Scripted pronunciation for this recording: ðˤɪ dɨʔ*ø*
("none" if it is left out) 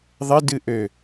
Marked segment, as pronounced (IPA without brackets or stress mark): ø